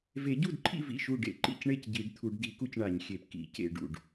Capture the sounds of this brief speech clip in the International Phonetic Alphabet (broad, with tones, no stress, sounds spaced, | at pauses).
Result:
v e˨˩˦ ɟ u˥˩ d ǃʰ ḭ˥˩ v ḭ˥˩ ʃ u˥˩ ɖ ḛ˥˩ ǃ ḭ˥˩ c ɳ e˥˩ c ɟ i˨˩˦ ɖ t̪ʰ u˨˩˦ ɖ d i˨˩˦ k u˥˩ c ɳ a˨˩˦ ɲ xʲ e˨˩˦ p k ḭ˨˩˦ c ḛ˥˩ ɖ ṵ˥˩ ɖ